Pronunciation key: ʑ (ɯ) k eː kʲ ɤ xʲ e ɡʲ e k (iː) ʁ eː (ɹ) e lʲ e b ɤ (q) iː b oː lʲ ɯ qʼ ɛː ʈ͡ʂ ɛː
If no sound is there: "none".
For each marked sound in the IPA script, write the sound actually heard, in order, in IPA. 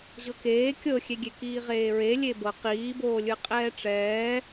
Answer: ɤ, iː, ɹ, q

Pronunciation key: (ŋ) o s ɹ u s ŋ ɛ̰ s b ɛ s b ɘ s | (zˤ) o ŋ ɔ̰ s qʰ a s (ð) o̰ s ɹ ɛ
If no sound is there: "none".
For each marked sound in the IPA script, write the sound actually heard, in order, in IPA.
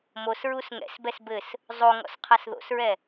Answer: m, zˤ, ð

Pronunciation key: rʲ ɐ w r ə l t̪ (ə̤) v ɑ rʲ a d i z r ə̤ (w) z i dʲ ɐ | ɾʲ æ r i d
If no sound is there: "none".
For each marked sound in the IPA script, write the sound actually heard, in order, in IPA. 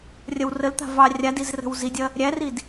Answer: a̤, w

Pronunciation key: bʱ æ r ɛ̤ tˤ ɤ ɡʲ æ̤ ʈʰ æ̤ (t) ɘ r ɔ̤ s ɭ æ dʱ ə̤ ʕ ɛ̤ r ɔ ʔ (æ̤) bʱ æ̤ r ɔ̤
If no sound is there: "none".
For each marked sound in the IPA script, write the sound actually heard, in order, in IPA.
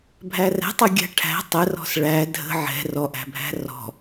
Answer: tˤ, æ̤

